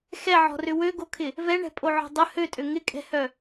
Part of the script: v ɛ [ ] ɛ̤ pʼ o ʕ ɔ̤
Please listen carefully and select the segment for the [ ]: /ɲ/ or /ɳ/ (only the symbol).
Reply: ɳ